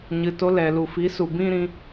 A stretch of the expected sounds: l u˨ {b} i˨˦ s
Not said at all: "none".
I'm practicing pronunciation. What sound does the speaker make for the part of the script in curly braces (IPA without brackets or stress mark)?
f